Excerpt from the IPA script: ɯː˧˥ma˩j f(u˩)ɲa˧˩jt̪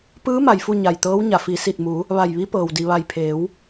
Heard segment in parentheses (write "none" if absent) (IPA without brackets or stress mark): u˥˨